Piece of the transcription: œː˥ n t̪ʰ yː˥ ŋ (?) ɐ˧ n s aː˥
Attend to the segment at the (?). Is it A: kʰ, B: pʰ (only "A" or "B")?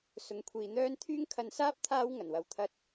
A